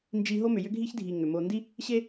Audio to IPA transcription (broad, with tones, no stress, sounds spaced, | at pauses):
n d͡ʒ i˨ ɦ o˦ m ʏ˨ j ʏ˦ ɡʱ i˦ ç dʱ i˨ ŋ ʏ˨ m o˨ n d i˦ | ɕ e˦